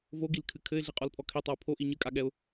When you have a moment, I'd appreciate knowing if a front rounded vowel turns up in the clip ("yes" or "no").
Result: no